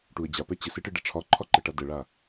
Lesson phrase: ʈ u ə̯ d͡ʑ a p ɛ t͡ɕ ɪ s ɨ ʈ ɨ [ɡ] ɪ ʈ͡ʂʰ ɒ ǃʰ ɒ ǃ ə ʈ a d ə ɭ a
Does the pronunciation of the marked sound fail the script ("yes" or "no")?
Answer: yes